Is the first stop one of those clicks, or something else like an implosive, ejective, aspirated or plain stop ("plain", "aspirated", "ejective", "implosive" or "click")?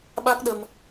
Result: implosive